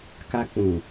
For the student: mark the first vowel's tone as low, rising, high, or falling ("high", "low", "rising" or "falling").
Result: high